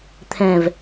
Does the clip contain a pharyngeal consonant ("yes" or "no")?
no